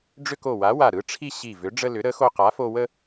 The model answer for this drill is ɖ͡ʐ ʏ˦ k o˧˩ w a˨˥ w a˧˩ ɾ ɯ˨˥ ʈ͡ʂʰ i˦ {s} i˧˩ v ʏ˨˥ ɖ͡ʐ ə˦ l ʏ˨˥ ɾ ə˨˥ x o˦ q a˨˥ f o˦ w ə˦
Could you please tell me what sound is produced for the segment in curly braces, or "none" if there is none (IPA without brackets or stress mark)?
ɕ